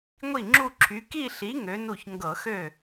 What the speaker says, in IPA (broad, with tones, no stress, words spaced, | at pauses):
ŋʷi˥˩ŋ͡ǁu˥˧ǁʰy˨˥ ki˥˧ɬi˨˥ ŋø˨˥nu˥˩ç ŋɡɤ˧˩˧xø˥˩